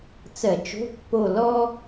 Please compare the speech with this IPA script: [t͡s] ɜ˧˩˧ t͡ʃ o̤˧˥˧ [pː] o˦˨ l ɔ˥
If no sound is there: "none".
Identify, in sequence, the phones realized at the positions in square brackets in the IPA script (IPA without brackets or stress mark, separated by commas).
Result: t͡s, pː